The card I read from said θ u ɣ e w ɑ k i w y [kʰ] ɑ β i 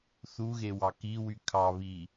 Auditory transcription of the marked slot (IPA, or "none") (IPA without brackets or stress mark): kʰ